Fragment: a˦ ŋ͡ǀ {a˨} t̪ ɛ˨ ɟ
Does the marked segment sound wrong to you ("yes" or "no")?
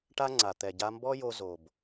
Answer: no